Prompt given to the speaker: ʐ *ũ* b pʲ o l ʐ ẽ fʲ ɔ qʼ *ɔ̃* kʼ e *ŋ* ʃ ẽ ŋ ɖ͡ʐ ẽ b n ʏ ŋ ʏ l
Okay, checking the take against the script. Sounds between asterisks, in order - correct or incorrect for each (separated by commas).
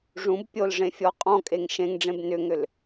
correct, correct, correct